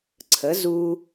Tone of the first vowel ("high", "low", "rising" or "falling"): rising